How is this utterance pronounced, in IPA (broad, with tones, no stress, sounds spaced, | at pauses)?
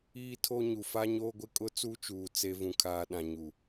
iː˦ tʰ o˦ ɲ u˨ f a˦ ɲ oː˦ ɡʷ ɪ˦ kʼ ʊ˦ t͡s u˦ t͡ʃ uː˨ t͡s e˦ v ũ˨ kʰ aː˨ ɗ ã˨ ɲ u˨